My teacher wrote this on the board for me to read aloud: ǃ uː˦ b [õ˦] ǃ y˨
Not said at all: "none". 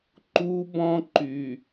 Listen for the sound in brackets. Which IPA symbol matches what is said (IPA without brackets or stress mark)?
ɔ̃˦